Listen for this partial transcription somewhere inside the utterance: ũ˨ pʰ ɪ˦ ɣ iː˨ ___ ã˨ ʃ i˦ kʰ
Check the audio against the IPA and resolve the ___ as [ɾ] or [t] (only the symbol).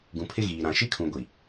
ɾ